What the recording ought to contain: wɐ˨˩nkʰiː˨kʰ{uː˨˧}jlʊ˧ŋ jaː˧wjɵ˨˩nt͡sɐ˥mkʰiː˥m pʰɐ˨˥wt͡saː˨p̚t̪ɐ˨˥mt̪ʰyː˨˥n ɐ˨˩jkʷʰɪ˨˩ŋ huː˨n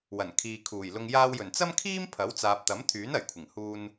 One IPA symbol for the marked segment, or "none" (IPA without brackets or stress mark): uː˨˩